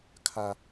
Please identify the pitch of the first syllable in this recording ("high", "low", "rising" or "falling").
high